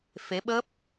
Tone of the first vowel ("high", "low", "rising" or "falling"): rising